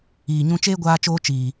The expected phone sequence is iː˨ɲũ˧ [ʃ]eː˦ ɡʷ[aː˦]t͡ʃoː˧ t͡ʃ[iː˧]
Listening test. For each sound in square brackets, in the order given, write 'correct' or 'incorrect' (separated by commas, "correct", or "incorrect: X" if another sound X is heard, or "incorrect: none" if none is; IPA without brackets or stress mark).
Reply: incorrect: t͡ʃ, incorrect: aː˧, incorrect: iː˨